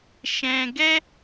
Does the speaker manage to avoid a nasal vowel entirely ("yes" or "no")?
no